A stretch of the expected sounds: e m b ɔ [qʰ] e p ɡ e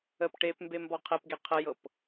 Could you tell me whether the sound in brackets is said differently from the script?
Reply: no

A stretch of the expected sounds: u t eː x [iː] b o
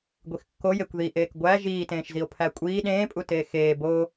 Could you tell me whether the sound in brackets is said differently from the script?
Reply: yes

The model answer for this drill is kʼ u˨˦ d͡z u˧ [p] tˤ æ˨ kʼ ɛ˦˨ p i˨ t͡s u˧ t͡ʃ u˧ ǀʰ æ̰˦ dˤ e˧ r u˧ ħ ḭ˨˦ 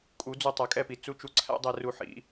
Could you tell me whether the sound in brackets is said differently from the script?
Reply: yes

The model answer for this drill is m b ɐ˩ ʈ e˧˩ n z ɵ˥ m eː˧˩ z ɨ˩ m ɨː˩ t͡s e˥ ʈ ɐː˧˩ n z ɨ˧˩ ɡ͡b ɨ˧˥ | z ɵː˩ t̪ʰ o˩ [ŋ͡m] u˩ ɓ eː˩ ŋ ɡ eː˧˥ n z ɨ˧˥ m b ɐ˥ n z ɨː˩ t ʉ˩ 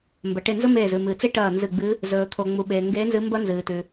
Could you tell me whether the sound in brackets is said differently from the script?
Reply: no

